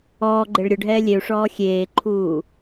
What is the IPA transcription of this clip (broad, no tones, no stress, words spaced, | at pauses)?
ɔːɡ͡ǃeɭ ɾʲʊɖʱɛː lʲeu̯ʂɔː xʲeːǃʰuː